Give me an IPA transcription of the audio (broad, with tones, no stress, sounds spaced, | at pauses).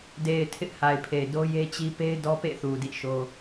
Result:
d e˨ ɪ̯ tʰ ɪ˦ ʔ h a˨ ɪ̯ pʰ e˨ ɪ̯ d o˦ j e˦ t͡ɕ i˦ p e˦ ɪ̯ d ɔ˦ p ḛ˦˨ θ u˨ d ḭ˦˨ ʃ o˦